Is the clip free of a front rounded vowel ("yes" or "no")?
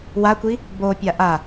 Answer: yes